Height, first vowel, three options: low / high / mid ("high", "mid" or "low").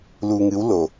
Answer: high